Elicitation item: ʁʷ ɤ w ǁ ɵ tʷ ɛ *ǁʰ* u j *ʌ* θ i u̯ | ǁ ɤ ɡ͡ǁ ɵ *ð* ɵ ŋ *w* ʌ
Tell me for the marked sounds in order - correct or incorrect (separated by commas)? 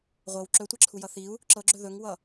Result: correct, correct, correct, correct